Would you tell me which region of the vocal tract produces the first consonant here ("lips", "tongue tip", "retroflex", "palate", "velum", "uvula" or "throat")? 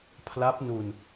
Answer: lips